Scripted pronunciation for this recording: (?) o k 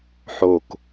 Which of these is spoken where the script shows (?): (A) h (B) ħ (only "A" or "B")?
B